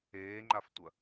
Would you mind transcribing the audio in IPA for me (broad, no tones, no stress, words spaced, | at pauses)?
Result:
eːŋ͡ǃaftʷɐ